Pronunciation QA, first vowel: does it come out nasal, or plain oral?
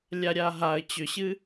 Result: oral